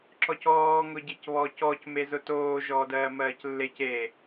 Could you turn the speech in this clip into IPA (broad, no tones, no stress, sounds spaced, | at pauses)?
ǁ ɔ c ɔː ŋ ʊ ɟ e c β ɔː c ɔ c m e z ʊ t oː ʒ ɔː d ɜː m ɜː c lː e c e